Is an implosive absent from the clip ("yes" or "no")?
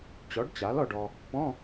yes